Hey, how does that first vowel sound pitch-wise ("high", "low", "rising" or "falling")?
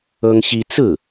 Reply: high